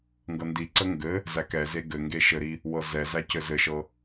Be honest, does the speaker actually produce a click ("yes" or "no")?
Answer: yes